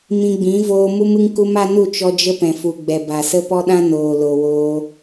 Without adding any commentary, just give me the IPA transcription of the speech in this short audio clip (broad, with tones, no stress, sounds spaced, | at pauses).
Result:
m ĩ˧ ɡ͡b ĩ˨˦ v oː˧ m u˦ m ɨ˧ ŋ k u˧ m a˧ n u˦˨ t͡ʃ ɔ˧ d͡ʒ ə˧ p ɛ̃˨ f u˨ ɡ͡b ɛ˨ b a˨ s ə˦ p ɔ˦ ɗ ã˦ n oː˨ l o˨ w oː˧